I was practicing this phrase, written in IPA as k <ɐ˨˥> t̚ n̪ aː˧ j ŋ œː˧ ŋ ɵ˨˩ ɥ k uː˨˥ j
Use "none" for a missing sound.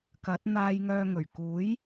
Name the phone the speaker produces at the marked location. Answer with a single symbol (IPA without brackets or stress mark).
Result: ɐ˨˥